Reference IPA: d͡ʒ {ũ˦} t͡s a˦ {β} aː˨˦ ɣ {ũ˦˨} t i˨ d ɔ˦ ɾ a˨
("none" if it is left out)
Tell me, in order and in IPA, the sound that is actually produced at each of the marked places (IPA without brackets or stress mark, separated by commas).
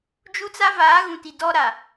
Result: u˦, v, ũ˨